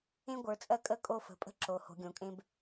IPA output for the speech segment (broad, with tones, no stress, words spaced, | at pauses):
ẽ˦ɡʷə˞˩˧ t͡sʼɜ˦kʼə˦kʼo˦˨fə̤˩˧ pʼə̤˦ǁo˩˧ ho̤˩˧ɡʲõ˩˧kʼẽ˦b